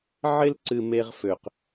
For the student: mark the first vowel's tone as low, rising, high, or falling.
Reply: high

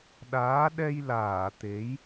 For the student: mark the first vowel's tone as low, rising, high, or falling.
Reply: rising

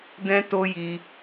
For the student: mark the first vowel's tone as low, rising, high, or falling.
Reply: high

